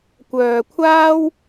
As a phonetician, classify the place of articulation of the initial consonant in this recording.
velar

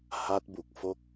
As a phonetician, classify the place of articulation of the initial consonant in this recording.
glottal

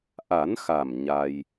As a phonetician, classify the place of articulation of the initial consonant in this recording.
glottal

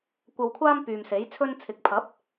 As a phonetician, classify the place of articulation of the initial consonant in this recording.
velar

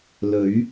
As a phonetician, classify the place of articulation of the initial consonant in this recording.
alveolar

